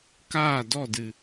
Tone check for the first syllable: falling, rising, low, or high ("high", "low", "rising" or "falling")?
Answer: falling